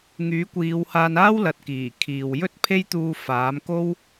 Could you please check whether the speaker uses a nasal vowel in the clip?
no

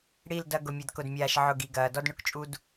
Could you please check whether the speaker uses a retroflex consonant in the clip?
yes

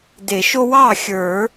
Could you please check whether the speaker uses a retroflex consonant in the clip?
no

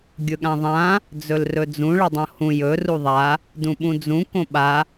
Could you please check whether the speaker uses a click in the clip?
no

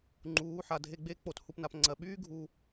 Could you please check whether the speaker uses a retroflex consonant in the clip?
no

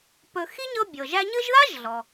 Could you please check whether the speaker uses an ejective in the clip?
no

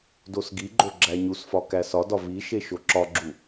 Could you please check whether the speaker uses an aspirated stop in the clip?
no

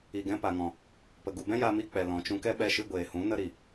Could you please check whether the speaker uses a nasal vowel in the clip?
yes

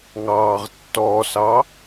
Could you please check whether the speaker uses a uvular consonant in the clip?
yes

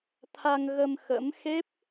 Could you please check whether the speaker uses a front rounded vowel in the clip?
no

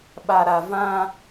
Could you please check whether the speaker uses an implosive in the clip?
yes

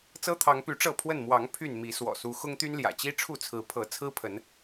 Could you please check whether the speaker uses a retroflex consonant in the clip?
yes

